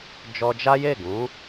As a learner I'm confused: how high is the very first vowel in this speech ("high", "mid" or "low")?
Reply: mid